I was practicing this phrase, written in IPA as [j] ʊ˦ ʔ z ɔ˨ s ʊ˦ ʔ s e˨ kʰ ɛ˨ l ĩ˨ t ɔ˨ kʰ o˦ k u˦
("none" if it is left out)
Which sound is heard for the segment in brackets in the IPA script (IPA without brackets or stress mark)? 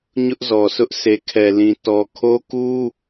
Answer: ɲ